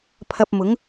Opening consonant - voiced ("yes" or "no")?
no